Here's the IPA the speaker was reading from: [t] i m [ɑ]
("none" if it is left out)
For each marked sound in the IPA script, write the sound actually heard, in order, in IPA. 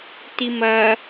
t, ɐ

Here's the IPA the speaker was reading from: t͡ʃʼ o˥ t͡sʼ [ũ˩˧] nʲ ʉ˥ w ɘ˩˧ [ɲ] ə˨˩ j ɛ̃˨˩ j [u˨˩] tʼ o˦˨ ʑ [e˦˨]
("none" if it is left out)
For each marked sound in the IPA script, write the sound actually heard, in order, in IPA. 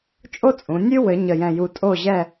ũ˩˧, ɲ, u˨˩, ɛ˦˨

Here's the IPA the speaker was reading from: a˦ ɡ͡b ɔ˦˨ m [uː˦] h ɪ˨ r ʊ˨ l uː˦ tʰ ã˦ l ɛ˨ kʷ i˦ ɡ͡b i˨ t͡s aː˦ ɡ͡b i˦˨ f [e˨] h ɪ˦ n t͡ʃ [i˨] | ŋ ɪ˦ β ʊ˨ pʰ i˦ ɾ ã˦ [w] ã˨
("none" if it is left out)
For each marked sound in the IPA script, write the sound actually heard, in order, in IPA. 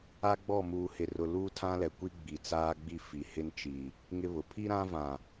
uː˨, i˨, i˨, v

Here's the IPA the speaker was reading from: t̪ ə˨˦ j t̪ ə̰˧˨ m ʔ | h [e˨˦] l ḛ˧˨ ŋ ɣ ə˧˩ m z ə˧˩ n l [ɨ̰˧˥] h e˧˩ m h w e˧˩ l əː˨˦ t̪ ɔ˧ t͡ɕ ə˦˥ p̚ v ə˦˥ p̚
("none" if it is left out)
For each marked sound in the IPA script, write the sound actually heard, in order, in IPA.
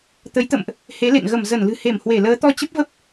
e˨˦, ɨ̤˨˩

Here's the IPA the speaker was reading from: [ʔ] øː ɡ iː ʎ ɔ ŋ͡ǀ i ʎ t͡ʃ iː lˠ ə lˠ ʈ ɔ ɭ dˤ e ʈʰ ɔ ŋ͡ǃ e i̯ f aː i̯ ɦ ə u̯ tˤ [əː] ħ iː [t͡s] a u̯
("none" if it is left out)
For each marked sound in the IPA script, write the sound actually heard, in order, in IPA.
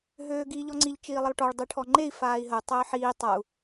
ɦ, əː, tˤ

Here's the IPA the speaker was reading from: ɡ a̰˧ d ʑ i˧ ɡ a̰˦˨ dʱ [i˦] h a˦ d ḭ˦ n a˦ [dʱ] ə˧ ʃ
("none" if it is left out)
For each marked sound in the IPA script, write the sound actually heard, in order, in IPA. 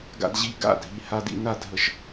i˧, dʱ

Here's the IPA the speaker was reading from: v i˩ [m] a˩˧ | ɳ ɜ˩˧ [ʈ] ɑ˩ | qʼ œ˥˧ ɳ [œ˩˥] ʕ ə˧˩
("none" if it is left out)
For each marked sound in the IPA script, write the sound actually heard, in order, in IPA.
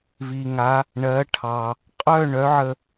ŋ, ʈʰ, œ˩˥

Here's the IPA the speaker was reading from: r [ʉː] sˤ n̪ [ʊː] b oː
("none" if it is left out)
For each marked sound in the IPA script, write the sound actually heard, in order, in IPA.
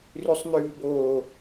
ʉ, ʉː

